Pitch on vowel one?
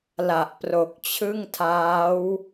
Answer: low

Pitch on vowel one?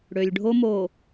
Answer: low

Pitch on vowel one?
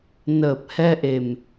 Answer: low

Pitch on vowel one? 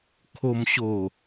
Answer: low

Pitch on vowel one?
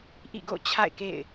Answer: falling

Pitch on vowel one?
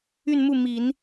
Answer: falling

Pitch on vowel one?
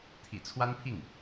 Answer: low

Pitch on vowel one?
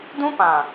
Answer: high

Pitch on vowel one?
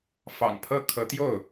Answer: low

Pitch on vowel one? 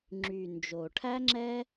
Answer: low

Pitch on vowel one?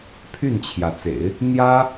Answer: falling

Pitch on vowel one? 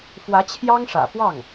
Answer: rising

